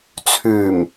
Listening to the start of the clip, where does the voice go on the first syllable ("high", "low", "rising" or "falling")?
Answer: low